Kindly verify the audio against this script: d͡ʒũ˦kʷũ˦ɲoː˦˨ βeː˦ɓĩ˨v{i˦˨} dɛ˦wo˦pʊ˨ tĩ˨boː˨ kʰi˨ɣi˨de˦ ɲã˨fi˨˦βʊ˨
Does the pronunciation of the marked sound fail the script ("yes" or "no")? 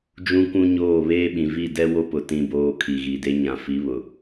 no